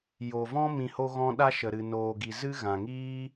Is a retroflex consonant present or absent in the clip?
absent